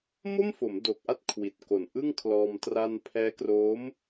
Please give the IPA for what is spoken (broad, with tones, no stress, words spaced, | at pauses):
mo˥˩mfo˩˦m do˨˩k̚ʔa˦˥t̚ kʰwi˨˩t̚ko˨˩nʔɯ˥˩ŋ kʰlɔː˧m tra˧npʰɛː˦˥kroː˦˥m